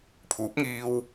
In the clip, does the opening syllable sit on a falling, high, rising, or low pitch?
rising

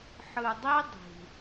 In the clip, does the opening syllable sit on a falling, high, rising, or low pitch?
low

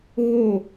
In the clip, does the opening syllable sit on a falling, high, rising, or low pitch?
falling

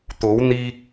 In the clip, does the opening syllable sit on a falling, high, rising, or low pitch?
rising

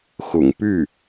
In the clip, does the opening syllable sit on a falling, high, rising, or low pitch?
low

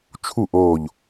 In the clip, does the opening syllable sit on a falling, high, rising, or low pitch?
falling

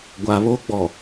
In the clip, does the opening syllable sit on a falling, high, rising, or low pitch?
low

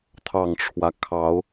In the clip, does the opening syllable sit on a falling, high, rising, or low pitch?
low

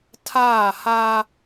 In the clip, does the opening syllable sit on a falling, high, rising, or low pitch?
falling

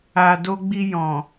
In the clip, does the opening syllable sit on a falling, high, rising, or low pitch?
low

